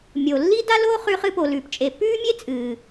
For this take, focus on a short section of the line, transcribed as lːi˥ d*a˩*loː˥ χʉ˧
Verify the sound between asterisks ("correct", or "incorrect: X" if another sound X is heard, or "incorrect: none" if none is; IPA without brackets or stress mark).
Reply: incorrect: a˥